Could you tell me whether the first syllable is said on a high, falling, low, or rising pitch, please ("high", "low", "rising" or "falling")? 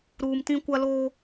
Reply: low